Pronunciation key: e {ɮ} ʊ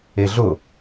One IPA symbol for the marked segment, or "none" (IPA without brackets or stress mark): ɮ